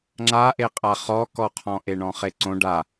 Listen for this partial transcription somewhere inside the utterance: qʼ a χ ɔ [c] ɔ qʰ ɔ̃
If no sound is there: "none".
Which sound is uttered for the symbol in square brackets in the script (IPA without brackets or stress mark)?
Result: k